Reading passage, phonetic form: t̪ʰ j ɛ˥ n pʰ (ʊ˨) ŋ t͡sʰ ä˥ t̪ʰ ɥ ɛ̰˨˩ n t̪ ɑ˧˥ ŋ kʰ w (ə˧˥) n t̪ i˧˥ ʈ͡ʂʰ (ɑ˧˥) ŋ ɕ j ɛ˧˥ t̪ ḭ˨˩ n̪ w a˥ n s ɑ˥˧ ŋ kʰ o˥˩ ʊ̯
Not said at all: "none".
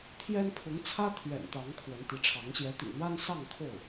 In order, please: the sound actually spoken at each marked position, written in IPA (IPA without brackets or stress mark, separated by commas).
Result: ʊ˧˥, ə˧˥, ɑ˧˥